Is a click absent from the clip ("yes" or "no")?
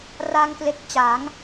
yes